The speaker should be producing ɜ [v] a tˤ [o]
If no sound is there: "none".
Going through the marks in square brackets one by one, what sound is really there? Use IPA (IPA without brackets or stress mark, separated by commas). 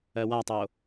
w, o